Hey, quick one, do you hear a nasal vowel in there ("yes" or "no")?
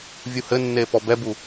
no